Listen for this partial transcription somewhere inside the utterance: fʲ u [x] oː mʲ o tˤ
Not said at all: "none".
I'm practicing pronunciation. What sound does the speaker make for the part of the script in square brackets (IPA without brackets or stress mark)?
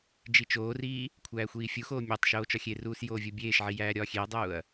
x